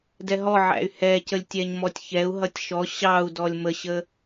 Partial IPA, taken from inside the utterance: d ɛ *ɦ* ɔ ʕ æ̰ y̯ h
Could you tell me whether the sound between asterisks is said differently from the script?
no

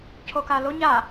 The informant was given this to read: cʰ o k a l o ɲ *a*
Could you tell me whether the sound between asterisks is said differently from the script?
no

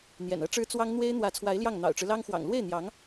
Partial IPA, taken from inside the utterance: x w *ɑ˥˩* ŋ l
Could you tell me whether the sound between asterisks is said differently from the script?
yes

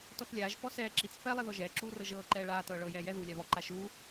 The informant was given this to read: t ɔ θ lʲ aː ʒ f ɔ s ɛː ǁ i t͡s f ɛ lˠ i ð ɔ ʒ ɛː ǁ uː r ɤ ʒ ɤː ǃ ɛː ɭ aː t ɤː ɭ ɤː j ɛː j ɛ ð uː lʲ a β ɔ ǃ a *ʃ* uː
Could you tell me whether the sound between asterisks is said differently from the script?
no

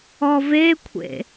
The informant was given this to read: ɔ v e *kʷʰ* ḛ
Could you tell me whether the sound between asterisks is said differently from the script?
no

